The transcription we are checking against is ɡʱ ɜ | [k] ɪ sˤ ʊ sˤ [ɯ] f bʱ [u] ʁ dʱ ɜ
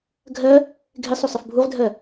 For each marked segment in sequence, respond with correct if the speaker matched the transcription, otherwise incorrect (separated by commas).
incorrect, incorrect, correct